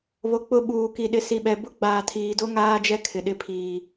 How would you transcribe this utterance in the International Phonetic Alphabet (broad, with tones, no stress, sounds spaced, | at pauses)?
β o˨ k͡p ʊ˦ ɓ uː˨ k i˨ ɗ ɪ˨ s i˨ ɓ ɛ˨ b ʊ˦ ɡ͡b aː˨ tʰ iː˨ d o˦ ŋ aː˦ d͡ʒ ɛ˦ kʰ ɪ˨ ɗ ɪ˦˨ pʰ iː˨